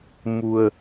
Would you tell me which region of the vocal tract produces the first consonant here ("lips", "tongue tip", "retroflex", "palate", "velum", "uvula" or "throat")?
lips